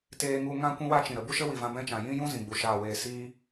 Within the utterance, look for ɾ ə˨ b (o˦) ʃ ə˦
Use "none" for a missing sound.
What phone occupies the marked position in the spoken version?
u˦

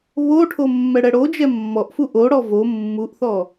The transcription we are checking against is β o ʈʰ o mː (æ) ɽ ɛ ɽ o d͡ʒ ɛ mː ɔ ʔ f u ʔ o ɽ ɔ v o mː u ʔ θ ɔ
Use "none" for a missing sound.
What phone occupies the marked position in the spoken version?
ɛ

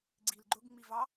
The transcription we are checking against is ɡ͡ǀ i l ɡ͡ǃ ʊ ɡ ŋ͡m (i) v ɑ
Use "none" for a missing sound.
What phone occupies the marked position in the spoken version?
i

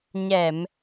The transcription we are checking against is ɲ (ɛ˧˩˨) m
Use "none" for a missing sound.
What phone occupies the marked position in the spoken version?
ɛ˧˩˨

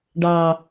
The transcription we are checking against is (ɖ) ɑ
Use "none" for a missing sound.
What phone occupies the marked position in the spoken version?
ɖ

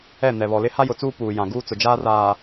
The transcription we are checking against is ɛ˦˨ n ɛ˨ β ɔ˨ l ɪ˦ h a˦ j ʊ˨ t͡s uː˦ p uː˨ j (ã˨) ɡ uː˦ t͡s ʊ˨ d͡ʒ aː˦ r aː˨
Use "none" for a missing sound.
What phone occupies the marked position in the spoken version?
ã˨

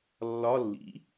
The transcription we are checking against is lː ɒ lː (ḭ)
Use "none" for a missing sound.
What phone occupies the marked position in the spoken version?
ḭ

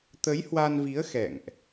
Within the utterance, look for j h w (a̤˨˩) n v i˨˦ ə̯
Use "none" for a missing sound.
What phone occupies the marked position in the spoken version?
a˧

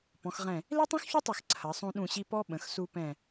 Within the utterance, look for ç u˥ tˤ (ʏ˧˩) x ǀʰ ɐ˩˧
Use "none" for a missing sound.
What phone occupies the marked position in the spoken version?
ɛ˧˩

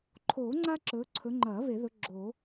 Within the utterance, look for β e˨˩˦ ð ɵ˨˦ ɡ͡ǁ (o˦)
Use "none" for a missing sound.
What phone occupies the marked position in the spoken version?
o˨˩˦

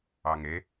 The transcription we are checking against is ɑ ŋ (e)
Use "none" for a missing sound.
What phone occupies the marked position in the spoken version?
e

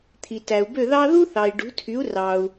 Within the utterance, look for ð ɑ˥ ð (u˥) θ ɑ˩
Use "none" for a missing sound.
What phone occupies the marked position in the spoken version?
u˥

